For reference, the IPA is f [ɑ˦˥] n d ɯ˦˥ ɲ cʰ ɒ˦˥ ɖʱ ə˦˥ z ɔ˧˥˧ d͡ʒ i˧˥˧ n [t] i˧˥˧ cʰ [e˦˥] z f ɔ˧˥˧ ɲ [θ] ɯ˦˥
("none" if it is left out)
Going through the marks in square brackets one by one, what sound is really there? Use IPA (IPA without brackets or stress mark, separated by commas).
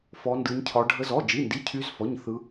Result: ɔ˦˥, d, y˦˥, θ